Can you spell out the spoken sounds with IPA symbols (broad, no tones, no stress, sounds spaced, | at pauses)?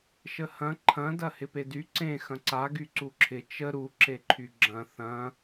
ʃ ə h ɐ̃ ǃʰ ɐ̃ d ɐ h ɪ p e d y ǀ ẽ x ɐ̃ ǀ a ɡ y ǀ u ǁʰ ɪ t͡ʃ ə ɾ u ǁ e ǃʰ y ɡ͡ǁ ɐ̃ θ ɐ̃